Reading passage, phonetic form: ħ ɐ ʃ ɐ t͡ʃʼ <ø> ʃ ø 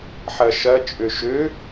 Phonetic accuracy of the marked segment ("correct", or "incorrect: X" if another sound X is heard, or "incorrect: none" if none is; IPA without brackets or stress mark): correct